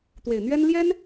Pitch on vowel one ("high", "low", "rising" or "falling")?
low